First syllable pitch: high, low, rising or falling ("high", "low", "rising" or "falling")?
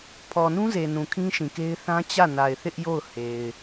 low